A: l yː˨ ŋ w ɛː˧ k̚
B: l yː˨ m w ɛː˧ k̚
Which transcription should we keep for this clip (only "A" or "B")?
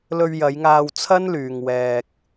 A